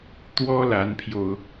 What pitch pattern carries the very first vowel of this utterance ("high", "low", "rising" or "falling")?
high